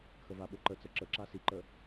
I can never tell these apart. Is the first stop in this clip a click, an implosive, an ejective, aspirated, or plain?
implosive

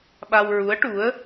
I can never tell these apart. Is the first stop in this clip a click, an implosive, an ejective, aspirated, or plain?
implosive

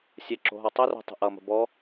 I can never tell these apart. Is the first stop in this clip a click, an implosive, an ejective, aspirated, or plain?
click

